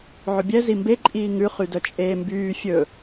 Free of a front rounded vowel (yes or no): no